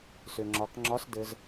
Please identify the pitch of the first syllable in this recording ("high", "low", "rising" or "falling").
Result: low